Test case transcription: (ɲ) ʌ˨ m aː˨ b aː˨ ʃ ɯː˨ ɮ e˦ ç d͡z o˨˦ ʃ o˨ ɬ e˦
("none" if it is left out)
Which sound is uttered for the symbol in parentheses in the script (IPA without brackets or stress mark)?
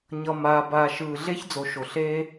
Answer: ɲ